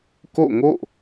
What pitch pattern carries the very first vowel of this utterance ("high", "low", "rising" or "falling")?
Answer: falling